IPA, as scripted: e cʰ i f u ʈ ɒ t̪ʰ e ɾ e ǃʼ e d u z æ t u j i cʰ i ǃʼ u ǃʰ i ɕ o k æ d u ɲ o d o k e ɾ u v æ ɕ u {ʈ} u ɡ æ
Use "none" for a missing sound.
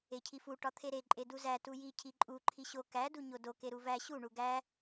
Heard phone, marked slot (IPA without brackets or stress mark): ɳ